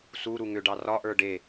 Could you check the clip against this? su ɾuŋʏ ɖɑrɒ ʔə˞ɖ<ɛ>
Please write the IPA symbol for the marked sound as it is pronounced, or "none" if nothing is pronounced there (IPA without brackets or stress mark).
e